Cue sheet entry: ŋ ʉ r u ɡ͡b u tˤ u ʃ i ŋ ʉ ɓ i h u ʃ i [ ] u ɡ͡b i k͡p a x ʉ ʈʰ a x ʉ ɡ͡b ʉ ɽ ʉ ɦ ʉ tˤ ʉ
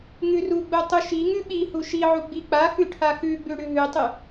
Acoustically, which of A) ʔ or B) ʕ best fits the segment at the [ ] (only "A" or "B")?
B